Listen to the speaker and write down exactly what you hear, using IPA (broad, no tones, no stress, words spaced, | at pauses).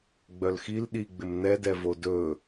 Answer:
ɡ͡bœlxil ɗiɡ͡bɪm n̪ɛdɛvo dɵ